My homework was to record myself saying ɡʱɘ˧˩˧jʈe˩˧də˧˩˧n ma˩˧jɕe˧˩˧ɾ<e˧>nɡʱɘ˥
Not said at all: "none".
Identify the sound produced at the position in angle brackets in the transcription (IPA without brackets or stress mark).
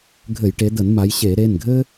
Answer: e˩˧˩